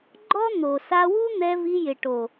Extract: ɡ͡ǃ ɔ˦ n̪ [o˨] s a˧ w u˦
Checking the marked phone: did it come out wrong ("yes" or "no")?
no